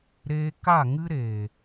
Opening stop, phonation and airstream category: plain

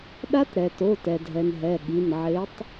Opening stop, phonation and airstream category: implosive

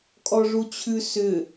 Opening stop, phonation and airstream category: ejective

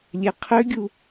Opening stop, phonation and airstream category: aspirated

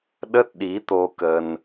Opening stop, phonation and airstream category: implosive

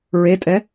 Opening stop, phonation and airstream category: ejective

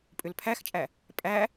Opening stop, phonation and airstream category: ejective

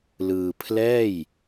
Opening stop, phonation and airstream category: aspirated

